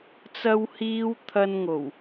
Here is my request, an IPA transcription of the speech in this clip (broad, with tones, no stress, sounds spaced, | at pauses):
t͡s ɐ˥ w h iː˥ w t̪ʰ ɐ˥ n ŋ o˨˩ w